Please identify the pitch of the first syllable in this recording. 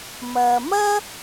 low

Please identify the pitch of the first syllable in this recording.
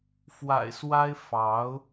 low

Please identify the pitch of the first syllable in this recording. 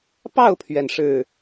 falling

